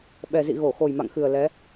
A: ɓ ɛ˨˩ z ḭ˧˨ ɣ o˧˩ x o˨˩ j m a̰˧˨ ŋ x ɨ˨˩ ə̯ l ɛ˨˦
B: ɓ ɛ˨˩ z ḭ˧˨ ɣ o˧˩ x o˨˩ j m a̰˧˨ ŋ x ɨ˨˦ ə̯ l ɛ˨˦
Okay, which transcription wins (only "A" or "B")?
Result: A